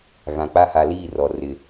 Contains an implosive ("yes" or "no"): no